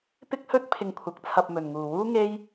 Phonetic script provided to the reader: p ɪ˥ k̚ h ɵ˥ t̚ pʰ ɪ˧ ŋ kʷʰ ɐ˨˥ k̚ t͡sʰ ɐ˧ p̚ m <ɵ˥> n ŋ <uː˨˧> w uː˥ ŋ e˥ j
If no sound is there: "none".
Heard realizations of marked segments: ɵ˨, uː˨

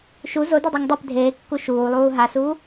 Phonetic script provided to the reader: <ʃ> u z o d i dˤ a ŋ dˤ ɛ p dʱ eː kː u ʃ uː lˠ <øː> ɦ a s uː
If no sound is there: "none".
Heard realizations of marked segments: ʃ, uː

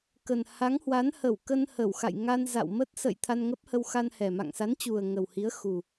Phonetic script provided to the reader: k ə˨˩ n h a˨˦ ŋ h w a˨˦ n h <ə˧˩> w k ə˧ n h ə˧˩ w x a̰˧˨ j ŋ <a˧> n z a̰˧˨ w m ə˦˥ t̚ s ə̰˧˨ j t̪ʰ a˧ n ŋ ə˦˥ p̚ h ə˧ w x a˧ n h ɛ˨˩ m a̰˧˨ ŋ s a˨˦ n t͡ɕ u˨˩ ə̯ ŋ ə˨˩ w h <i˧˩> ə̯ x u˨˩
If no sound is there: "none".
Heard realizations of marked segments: ə˧˩, a˧, i˨˦

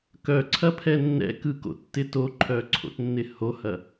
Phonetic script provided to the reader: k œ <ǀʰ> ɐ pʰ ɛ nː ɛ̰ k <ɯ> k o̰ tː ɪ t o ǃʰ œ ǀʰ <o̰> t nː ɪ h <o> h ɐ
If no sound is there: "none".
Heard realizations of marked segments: ǀʰ, ɯ, o̰, o

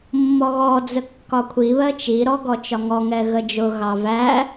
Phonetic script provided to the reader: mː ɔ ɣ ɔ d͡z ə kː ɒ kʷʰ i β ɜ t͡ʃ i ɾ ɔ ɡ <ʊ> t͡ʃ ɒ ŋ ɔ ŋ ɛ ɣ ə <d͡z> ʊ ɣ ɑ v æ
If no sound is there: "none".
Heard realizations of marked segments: ɔ, d͡ʒ

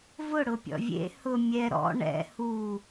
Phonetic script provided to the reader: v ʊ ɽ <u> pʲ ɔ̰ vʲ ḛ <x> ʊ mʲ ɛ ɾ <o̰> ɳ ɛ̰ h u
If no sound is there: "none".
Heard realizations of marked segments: ʊ, h, ɔ̰

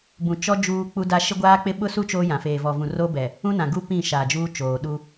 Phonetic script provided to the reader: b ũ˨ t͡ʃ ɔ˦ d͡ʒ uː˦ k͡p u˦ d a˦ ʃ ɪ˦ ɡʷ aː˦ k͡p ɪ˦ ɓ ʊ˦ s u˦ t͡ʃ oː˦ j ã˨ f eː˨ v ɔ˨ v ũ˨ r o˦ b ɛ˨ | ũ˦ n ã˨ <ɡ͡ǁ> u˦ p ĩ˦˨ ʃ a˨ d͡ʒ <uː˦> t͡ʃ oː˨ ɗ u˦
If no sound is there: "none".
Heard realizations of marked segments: ɡ, uː˦

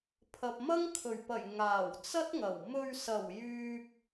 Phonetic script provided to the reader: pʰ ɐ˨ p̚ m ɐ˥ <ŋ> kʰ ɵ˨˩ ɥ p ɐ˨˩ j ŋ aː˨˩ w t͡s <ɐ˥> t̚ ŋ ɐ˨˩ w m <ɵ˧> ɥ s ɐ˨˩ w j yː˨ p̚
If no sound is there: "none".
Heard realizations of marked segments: ŋ, ɐ˥, ɵ˧

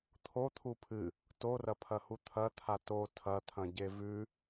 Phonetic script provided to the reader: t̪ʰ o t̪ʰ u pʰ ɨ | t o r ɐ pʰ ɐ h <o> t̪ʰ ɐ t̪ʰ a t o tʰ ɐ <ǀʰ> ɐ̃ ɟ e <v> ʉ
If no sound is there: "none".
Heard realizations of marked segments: u, t̪ʰ, v

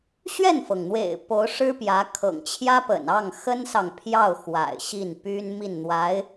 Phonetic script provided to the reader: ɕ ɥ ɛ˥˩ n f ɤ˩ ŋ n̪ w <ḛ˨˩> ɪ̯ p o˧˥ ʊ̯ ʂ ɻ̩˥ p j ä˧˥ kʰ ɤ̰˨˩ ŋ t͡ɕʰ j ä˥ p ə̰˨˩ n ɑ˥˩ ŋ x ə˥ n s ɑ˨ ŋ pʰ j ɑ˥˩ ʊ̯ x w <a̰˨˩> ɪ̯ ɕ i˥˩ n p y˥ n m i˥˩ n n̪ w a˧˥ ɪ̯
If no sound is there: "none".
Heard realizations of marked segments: ḛ˨˩, a̰˨˩

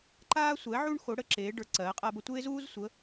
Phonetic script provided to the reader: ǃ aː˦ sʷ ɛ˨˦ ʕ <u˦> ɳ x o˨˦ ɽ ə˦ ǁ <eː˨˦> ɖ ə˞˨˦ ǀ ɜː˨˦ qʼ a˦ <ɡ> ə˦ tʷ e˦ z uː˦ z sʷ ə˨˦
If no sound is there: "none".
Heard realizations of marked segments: u˦, eː˨˦, b

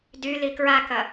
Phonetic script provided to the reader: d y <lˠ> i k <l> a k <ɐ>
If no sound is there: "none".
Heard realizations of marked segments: l, ɹ, ɐ

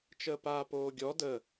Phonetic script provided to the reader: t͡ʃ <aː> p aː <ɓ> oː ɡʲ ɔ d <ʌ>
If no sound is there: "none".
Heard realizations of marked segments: əː, p, ə

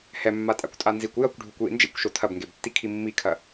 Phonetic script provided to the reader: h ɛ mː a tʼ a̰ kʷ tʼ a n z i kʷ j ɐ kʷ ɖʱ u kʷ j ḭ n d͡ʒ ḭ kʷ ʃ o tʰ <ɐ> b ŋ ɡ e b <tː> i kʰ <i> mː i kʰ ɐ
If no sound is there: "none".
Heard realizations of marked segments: ɐ, tː, i

